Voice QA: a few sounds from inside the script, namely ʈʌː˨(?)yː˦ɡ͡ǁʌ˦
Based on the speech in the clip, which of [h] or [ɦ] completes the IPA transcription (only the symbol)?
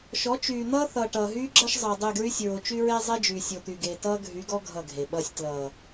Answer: ɦ